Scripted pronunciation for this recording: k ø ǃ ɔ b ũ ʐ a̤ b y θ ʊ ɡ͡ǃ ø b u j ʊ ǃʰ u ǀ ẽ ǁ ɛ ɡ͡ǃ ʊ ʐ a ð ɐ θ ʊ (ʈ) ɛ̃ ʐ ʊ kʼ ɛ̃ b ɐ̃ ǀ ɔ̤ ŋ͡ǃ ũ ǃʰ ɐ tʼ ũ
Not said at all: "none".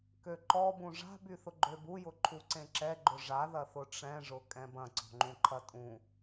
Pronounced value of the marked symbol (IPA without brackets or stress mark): ʈ͡ʂ